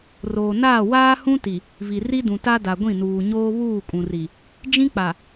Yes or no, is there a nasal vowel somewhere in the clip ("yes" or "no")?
yes